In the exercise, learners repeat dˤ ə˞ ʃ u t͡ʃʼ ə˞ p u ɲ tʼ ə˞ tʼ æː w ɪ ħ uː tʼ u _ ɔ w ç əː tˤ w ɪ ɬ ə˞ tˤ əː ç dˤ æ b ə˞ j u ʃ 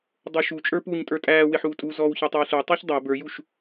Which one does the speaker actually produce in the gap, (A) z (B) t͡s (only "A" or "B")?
A